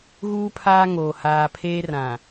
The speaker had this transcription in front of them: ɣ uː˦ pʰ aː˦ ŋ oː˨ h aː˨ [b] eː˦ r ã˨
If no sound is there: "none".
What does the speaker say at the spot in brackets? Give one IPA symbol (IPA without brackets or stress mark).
pʰ